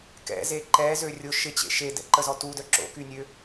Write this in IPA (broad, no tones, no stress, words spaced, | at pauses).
kɛ̰ze ǃɛzø rʲʊ ʃɪt͡ɕḛ ʃedɛ̰ǃəzɔ tudœ ǁo̰kynʲø